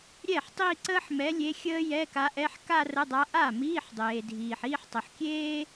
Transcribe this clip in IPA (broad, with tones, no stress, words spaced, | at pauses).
ɾʲɛ˥˩ħ tˤi˥˧ǀəː˥ħmɛ˧˥lʲe˧˥ xʲəː˥jɛ˧˥˧ka˧˥ʔɛ˧˥˧ħ ka˥˧rə˧˥˧dˤa˧˥ ʔa˥˩miː˧˥˧ħ dˤeː˨dʱiː˨ħ iː˥˧ħtˤə˨ħkʲeː˥